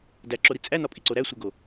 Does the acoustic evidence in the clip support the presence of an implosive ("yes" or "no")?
no